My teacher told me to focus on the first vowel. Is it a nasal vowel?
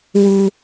no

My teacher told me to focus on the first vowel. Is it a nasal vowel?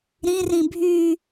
yes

